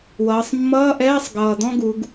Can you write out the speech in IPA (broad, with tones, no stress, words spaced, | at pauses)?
wʌː˩˧sˤmːʌː˧˥˧ʔɛː˧˥˧sˤ ɡʌː˨˩d̪ɔ̃˥ɡu˩˧ɡ